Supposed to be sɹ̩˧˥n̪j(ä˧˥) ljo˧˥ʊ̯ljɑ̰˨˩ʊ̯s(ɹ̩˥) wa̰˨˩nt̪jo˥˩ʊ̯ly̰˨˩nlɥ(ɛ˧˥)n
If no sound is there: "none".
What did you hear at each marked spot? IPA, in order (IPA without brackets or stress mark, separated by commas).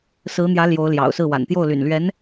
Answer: ä˧˥, ɹ̩˥˩, ɛ˧˥